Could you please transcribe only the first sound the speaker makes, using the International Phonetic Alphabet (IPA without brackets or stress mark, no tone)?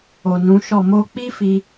o